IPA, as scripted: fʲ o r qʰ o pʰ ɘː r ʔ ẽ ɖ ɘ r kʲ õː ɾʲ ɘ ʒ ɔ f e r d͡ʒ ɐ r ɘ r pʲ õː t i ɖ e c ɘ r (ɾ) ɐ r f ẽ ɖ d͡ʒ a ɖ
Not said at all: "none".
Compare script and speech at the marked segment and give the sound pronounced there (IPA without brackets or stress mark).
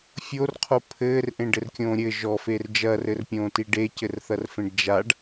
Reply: θ